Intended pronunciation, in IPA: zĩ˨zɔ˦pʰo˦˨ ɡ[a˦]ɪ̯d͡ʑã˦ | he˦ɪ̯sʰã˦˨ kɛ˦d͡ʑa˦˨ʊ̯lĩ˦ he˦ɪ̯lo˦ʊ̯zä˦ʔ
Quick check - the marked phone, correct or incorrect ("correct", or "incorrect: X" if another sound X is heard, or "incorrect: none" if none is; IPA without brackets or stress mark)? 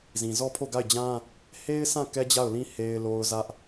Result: incorrect: a˦˨